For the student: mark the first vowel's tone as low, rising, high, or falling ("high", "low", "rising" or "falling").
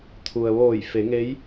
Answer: low